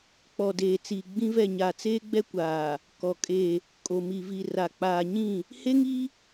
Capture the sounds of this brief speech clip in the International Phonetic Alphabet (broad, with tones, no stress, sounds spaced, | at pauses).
k͡p ɔ˨ d eː˨ t͡s iː˨ ɡ͡b ĩ˦ v ɛ˦˨ ɲ a˨ t͡s eː˦ ɡ͡b ɛ˦ kʷ aː˨ | k ɔ˨ kʼ e˦˨ | kʼ o˨ m i˨ v i˨ r a˨ k͡p aː˨ ɲ ĩ˦˨ | h e˦ ŋ i˦